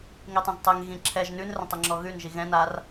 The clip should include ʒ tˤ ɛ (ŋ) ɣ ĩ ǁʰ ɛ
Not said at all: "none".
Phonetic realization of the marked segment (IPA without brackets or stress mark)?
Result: ŋ